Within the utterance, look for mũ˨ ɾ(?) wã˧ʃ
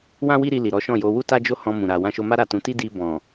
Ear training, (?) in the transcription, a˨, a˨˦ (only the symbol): a˨